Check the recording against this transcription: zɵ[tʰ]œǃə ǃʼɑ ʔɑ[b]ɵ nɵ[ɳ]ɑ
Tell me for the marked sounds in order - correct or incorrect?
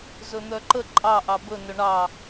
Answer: incorrect: n̪, correct, correct

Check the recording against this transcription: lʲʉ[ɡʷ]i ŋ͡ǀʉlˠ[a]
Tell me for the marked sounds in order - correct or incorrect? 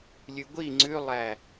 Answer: correct, incorrect: æ

